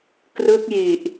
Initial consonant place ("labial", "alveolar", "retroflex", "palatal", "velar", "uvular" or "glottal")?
velar